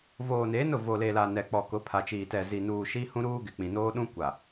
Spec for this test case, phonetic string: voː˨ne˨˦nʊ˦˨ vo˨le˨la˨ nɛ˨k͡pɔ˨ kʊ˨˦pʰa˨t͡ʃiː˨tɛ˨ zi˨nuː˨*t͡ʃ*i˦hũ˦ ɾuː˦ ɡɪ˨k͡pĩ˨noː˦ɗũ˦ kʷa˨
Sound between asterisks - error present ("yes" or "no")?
yes